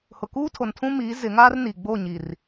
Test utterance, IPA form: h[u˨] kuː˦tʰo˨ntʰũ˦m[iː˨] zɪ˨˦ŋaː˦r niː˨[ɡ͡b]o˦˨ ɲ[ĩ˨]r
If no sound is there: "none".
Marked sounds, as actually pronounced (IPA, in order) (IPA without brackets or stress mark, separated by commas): ʊ˨, iː˨˦, ɡ͡b, i˨